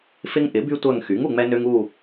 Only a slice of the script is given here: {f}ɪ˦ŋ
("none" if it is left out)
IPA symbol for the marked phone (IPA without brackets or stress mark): f